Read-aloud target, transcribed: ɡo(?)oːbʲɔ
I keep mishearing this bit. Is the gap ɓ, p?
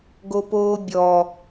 p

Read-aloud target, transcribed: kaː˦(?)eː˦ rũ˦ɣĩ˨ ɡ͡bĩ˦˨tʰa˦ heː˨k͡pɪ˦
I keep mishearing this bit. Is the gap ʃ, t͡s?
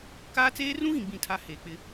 t͡s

